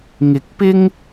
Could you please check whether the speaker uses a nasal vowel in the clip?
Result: no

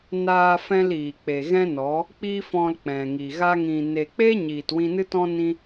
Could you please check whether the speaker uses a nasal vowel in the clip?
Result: yes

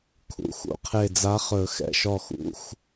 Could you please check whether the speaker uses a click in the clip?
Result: no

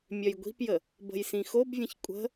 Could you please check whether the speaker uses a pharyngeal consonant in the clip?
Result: no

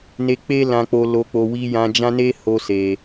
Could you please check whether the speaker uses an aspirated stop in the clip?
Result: no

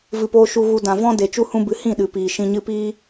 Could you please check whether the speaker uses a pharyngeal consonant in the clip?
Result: no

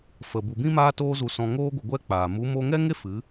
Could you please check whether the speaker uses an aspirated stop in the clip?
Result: no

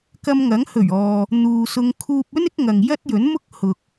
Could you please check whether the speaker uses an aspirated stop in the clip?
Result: yes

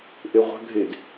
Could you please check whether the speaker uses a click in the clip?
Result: no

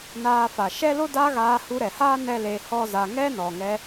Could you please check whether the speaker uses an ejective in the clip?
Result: no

